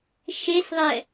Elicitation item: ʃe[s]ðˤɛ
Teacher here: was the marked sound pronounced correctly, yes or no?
yes